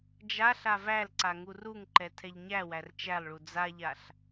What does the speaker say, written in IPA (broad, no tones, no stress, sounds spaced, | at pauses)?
d͡ʒ a ɬ a v æ l ǀ a ŋ u r u ŋ ǃ ɛ tʰ ɛ ʎ ɲ æ w æ r t͡ʃ æ lˠ ɭ u d͡z a ʎ a ɬ